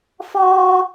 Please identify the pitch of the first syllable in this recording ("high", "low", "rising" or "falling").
high